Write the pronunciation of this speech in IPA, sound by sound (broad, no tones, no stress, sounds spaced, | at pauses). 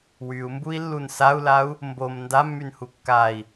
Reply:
w y u̯ m b u i̯ lː u n s a u̯ l a u̯ | m b o m n d a mː y n h u kː a i̯